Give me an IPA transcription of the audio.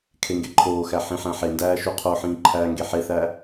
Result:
kʰ e ŋ ɡ e ǃʰ oː x æ ħ ĩ ħ æ̃ ħ e n d æː ʃ u qʰ o ħ ĩː ǃʰ æː ŋ ɡ e ħ e θ æ

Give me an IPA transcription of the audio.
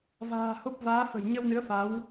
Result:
v a̤ː˨˩ h o˦˥ p̚ v aː˨˦ f ə̤˨˩ j ɲ ə˧ w n ɨ˨˦ ə̯ f a˨˦ w

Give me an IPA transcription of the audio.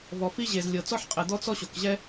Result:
v ɔ˩ f i˥ ʑ e˩ z lʲ ɤ˩ t͡s ɔ˥ ħ qʼ ɛ˩ d̪ ɔ˥ t͡s ɔ˥ ɕ o˩ k ʑ ɛ˥

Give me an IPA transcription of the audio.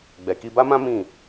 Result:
ɡ͡b ɛ˨ k i˧ b a˦ m ã˦ m ĩ˦˨

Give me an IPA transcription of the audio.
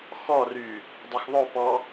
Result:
x ɔ r y | dˤ ɵ x ðˤ o p ɔ

